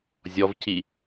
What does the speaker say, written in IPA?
zʲɔvci

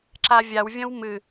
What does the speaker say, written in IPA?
ǁavʲawvʲɐ̃w mɨ

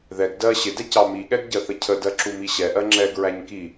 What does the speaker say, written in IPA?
ðɛɡ dɜ ɕɪdɛ cɑmiɠɛɡ ɟɜθəcʰədɜ ǁumiɕɛʔɜ ŋ͡ǁɛɡɹæɲ ki

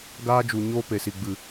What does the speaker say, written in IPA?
ɡaː˦d͡ʒu˨ ɲoː˦pe˨si˨ ɡ͡bɨ˨

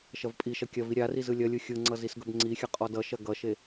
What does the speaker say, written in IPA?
ʃɐvpʼiʃɐ kʲɐvi ɾʲariz ɯlʲɐlʲɯ xʲɯŋ͡ǀʌz isɡɵbŋ͡ǀixʲɐ qʼɔdʌʃɐ ɡʌʃe

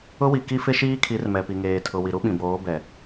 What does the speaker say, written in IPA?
ʊ˦wi˨ ki˦fɪ˦ʃiː˦kʰi˨˦r mɛ˨pi˨ŋeː˨ tʰʊ˨ wi˨ɾu˦ɓĩ˨boː˨˦ bɛ˨

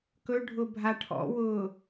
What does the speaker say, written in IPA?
kɵɖʱʊ bʱaʈʰɔ̰wʊː

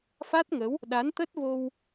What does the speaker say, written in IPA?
fa˦˥t̚ŋə˨˦w | ɗa˨˦nt̪ə˦˥t̚vo˧w

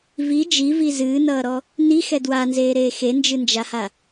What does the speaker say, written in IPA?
vi d͡ʒivi zɨːnʌːɾɔ | nixɛ dwanzeːɾeː xend͡ʒɨnd͡ʒaha

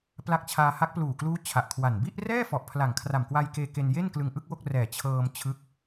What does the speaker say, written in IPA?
pla˦˥k̚t͡ɕʰaː˧ ha˦˥k̚ pluː˨˩kluː˦˥ t͡ɕʰa˨˩ʔkʰwa˨˩n bi˥˩ʔrɛː˥˩fɔ˨˩ʔ pʰla˨˩ŋkʰra˨˩mkwa˧jkeː˧ ke˧nje˥˩nklɯ˧ŋ ʔɯ˥˩k̚wo˥˩k̚rɛː˨˩ t͡ɕʰɤː˧m t͡ɕʰɯ˦˥k̚

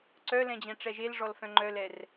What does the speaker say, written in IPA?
ǀœlɛ̃d͡ʑɛ̃ ʈ͡ʂɛʒelʐɔlfœ̃ ŋ͡ǃœlɛr

